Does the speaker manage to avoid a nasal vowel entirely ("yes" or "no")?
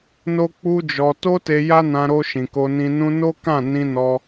no